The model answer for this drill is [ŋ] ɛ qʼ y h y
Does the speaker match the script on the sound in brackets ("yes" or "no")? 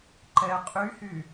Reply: no